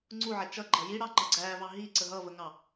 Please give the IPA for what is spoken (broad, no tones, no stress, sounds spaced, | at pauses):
ŋ͡ǀ u ʕ ɛ t͡ʃ ʌ ɡ͡ǃ ʌ j i ɽ ɑ ŋ͡ǃ ʌ ɡ͡ǀ æ v ɑ ɦ i ǀ ə ɦ ʌ v ə ŋ ɑ